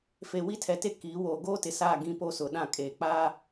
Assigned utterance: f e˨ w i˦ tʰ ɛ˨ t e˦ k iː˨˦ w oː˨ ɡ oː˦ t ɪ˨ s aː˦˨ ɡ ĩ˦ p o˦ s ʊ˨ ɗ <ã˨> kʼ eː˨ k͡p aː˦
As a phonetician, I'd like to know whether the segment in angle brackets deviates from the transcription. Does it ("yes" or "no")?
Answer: yes